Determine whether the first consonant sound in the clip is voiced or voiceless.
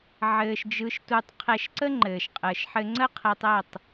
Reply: voiced